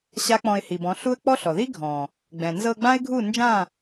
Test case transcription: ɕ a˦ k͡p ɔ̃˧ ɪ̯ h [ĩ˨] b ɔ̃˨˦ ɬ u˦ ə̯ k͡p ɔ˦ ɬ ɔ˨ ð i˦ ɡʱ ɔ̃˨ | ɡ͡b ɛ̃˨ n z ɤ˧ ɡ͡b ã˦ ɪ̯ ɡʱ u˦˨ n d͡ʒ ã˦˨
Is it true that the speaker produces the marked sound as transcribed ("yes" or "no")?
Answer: no